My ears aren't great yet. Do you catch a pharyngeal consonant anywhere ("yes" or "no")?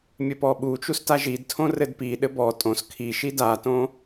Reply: no